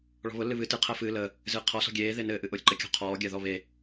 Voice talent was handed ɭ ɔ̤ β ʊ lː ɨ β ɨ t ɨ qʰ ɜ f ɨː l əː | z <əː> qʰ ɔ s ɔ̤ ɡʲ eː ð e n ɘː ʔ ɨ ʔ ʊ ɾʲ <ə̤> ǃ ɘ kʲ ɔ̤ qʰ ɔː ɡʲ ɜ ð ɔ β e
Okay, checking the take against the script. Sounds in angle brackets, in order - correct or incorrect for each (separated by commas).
incorrect, correct